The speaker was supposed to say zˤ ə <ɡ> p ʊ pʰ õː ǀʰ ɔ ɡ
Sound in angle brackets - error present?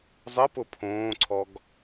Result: yes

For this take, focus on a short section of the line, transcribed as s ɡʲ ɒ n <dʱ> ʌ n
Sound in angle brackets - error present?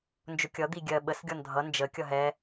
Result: no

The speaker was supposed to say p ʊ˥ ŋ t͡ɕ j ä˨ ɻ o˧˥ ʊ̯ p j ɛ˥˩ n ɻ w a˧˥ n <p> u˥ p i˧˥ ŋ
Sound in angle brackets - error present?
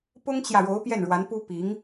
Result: no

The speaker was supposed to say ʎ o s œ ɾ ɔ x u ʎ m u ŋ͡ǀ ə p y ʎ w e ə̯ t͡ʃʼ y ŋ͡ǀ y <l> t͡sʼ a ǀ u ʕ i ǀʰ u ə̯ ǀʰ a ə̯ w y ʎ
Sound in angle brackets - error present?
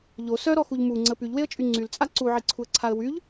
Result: no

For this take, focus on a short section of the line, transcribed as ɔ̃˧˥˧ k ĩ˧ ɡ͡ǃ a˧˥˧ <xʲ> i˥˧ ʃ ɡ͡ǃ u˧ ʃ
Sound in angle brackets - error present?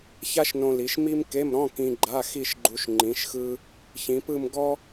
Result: yes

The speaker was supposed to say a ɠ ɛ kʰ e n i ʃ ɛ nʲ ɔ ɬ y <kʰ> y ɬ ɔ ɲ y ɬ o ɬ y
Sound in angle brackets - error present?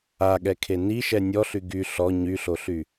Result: yes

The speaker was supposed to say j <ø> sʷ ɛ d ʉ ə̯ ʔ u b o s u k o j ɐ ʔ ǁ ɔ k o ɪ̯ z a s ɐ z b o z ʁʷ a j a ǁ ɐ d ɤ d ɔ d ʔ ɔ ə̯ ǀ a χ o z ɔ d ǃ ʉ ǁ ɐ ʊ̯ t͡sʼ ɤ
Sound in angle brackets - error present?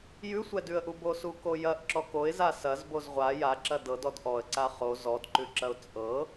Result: yes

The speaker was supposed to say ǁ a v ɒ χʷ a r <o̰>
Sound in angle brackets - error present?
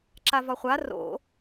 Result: no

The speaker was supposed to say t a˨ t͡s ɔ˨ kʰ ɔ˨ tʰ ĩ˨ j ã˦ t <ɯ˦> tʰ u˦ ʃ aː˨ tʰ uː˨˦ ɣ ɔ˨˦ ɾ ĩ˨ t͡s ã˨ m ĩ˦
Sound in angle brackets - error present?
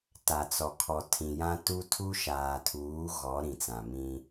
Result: yes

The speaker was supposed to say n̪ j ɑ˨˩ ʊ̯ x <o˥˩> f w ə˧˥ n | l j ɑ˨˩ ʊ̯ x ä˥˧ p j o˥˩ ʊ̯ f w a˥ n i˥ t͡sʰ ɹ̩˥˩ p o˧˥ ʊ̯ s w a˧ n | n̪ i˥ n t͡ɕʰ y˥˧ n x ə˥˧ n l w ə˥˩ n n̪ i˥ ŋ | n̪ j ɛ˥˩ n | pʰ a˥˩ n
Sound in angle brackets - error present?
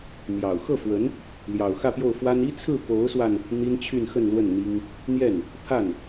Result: yes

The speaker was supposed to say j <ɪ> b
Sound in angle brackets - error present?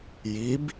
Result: yes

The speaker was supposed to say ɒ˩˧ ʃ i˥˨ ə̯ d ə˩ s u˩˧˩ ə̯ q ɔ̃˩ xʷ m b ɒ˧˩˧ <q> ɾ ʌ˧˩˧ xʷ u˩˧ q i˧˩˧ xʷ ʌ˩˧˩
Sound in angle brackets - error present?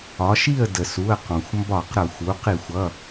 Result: no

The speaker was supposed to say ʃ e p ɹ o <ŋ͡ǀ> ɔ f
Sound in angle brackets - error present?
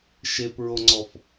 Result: no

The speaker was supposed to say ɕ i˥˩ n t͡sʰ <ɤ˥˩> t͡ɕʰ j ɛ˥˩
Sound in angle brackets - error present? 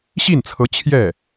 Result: yes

